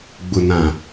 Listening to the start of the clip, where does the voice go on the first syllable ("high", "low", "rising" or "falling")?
low